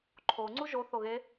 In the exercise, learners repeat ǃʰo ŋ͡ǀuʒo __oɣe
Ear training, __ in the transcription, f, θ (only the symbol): θ